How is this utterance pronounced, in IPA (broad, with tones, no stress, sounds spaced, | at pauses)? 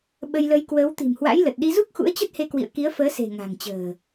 ɓ ə˧ j l ə˧ j k w əː˨˦ w t̪ i̤˨˩ m h w a̰˧˥ j l ə˨˩ t̚ ɗ i˧ z u˦˥ k̚ x ṵ˧˥ ə̯ t͡ɕ ə˦˥ t̚ h e˧ k w ḭ˧˨ ə̯ k i˨˦ ə̯ f əː˨˦ s e̤˨˩ ŋ a̤˨˩ ŋ t͡ɕ ə̤ː˨˩